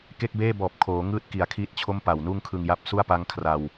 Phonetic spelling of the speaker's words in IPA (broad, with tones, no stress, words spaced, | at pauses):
ke˥˩k̚beː˥˩bɔː˨˩p̚ kʰoː˩˦ ŋɯː˥˩t̚ki˨˩a̯kʰiː˦˥t̚t͡ɕʰo˥˩m pa˨˩wnuː˥˩ŋkʰɯ˧ŋja˦˥p̚ su˥˩a̯pa˦˥ŋ kʰra˧w